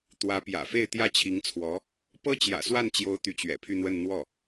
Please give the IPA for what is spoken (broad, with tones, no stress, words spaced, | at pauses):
t̪wä˧˥pjä̰˨˩ fe˥˧ɪ̯t̪jä˥˩t͡ɕʰi˧˥ŋt͡sʰwɔ˧˥ | pɤ˥t͡ɕjä̰˨˩swa˥˩nt͡ɕjo˧˥ʊ̯ t̪y˧˥t͡ɕɥɛ̰˨˩pʰy˥˧n̪wə˥˧n n̪wɔ˥˩